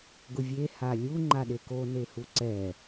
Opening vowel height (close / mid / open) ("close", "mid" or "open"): close